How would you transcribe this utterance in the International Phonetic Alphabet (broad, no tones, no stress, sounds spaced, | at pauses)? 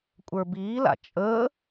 kʷʼ ə˞ b iː l a̰ t͡ʃʼ əː